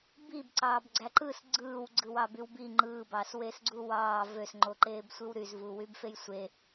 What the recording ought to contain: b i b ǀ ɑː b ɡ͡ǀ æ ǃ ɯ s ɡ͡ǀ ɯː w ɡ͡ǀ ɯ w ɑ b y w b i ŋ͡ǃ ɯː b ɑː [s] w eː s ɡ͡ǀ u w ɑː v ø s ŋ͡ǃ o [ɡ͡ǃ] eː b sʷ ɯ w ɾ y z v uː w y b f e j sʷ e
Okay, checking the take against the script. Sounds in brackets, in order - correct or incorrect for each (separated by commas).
correct, incorrect